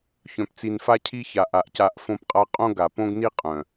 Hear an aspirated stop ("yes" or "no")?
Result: yes